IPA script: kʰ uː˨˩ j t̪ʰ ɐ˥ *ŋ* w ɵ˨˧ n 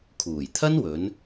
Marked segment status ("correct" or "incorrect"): incorrect